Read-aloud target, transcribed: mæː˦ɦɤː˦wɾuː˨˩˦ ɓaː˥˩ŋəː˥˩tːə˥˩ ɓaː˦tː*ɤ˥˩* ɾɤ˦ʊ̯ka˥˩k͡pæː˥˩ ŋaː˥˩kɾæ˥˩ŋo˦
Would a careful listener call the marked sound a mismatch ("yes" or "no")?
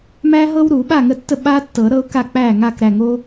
yes